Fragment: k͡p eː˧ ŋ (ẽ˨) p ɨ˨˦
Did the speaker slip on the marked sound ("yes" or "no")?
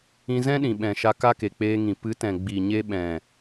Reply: yes